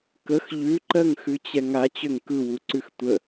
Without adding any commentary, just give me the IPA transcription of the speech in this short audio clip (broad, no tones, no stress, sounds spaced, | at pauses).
k ə x ʎ ʉ ǃ ɜ ŋ x ʉ t͡ɕ ɛ ŋ a t͡ɕ ø ŋ k ɯ w u ǀ ʉ x tʷ ə